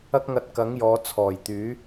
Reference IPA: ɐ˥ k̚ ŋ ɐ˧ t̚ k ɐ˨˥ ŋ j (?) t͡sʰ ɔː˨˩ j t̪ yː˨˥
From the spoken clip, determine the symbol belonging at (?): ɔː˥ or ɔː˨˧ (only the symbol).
ɔː˨˧